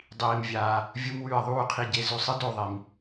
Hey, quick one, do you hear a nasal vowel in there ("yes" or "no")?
no